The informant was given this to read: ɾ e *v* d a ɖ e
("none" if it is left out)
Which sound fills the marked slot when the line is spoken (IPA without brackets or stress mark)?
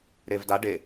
v